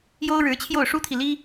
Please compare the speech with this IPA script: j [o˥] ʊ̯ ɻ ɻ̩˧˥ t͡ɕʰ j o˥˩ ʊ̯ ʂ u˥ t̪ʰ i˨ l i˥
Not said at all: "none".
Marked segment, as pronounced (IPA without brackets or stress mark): o˥